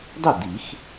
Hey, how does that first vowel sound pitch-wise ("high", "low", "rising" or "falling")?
falling